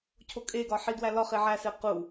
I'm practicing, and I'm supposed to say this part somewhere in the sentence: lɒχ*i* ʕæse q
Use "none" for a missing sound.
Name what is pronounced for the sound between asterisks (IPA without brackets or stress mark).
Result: e